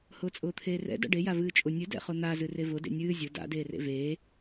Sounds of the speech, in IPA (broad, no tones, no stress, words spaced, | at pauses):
hʊːt͡sʼʊːt̪ʰeːrɛ̰ da̰ɖe javɨːt͡ʃʼʊ nʲɨ dɛ̰χʊn̪a zɨrevʊ dḛnʲɨː zʲʊ da̰ deːrḛveː